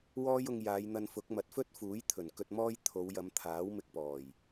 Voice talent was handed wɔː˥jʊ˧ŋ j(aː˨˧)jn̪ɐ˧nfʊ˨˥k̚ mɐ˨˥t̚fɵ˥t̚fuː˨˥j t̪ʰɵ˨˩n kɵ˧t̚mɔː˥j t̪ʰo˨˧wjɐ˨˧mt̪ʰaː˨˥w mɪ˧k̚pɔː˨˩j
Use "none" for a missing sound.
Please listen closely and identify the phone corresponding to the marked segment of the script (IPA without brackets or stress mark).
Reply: aː˨˧